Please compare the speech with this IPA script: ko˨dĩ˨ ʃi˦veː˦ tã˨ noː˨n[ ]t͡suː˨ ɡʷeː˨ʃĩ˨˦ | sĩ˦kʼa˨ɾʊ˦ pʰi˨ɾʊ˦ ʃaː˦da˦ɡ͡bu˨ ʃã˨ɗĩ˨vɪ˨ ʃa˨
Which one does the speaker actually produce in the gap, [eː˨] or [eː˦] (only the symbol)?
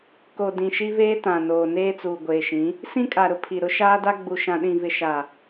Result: eː˦